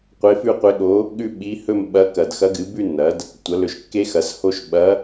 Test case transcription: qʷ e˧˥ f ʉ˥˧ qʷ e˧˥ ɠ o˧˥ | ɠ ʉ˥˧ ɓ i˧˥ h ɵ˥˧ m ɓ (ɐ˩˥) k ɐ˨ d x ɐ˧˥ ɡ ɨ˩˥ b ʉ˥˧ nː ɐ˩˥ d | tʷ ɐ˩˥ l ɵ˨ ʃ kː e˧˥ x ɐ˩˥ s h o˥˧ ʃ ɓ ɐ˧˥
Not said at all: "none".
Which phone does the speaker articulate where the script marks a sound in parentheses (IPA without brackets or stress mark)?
ɐ˧˥